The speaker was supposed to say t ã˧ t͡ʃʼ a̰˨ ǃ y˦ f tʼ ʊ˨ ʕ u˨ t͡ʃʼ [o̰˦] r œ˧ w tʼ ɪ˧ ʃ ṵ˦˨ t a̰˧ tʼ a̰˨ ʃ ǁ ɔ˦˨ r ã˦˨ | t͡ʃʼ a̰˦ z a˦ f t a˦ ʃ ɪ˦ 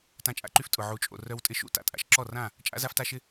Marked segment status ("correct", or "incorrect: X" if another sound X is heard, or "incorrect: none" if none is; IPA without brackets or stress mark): incorrect: o̰˨